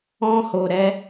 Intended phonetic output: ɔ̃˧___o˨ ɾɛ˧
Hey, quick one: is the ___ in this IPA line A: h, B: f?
A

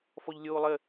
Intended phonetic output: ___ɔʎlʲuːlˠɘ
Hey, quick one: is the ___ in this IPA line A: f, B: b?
A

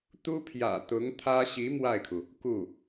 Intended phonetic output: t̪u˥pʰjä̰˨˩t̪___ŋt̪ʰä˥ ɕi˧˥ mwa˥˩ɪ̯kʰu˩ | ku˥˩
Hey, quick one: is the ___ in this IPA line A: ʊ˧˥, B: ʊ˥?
A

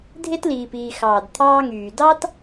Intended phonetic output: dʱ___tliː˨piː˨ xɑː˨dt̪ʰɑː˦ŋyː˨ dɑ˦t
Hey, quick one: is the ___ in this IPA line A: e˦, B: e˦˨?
A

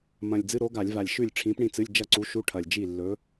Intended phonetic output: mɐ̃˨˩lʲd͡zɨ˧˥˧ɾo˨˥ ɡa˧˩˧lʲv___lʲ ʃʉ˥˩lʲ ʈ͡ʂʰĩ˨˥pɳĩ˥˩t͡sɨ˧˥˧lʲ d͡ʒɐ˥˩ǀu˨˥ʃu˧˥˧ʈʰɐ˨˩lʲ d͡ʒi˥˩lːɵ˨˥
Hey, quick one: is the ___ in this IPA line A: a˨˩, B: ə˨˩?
A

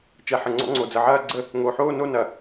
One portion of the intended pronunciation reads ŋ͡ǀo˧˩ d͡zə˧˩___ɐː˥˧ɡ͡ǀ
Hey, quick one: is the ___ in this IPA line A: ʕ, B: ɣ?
A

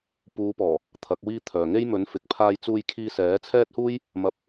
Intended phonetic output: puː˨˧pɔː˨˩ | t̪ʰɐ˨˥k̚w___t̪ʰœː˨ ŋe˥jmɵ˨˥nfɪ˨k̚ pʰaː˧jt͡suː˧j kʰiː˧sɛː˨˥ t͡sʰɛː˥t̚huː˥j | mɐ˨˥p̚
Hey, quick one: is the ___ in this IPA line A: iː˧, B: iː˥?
B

